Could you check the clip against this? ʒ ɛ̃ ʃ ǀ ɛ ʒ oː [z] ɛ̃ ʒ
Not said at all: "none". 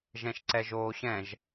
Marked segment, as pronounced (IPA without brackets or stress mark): ɕ